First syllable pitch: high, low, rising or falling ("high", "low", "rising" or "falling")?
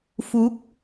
rising